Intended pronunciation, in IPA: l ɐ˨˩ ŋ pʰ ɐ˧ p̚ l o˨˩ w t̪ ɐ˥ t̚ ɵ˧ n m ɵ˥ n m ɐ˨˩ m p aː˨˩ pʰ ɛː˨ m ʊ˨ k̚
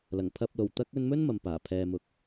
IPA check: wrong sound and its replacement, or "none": t̚ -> k̚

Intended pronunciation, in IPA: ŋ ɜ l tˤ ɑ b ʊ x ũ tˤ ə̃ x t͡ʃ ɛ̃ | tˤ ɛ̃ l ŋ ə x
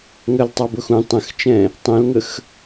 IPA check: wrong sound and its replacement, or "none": none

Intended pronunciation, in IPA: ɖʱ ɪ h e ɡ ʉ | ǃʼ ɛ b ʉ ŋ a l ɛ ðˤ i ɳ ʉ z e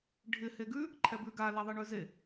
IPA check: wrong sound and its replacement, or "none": ŋ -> ɡ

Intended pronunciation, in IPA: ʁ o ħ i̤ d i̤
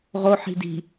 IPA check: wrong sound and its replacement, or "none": none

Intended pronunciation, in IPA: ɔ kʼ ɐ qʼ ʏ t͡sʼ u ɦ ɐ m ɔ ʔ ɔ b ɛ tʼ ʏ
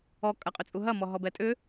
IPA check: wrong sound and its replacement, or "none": ʔ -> ɦ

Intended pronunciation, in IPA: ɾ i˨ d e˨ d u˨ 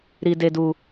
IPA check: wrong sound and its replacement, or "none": none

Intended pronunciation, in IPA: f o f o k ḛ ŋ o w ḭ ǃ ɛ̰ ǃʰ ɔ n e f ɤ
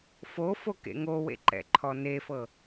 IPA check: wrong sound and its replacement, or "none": ḭ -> ḛ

